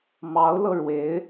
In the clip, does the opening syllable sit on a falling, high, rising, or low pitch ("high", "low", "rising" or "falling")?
rising